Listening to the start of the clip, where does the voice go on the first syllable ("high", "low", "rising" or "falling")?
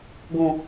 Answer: low